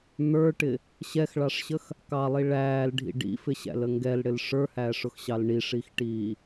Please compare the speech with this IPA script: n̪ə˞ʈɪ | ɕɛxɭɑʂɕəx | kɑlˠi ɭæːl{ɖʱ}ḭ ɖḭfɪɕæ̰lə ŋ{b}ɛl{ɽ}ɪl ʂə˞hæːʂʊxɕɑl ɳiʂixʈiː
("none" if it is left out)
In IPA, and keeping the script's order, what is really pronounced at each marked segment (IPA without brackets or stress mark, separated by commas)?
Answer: ɖʱ, ɡ, ɽ